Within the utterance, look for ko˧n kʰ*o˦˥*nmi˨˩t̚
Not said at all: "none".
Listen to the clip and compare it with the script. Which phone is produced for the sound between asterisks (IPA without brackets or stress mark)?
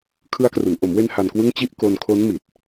o˦˥